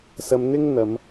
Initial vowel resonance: oral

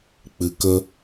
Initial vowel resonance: oral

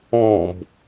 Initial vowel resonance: nasal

